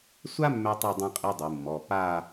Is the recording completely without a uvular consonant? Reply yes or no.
no